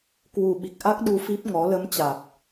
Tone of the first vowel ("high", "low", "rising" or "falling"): low